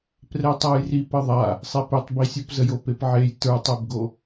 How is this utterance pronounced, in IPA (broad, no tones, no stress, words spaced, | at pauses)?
prɛtˤajrip əðˤa | sˤepetˤbisʲop zəjopepʕej tə˞tˤɛbɡo